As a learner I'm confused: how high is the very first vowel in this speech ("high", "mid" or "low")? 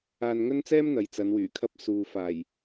low